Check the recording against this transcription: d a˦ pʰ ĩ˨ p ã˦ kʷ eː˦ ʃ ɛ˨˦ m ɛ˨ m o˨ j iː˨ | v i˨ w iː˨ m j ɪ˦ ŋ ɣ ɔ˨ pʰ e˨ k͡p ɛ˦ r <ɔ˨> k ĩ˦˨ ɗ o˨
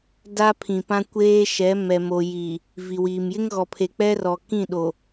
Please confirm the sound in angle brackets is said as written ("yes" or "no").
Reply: yes